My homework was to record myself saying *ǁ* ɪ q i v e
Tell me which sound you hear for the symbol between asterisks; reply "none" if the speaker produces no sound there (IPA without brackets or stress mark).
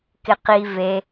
k